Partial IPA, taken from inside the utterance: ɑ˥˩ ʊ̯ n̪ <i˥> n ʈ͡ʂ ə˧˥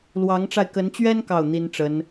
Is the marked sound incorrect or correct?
correct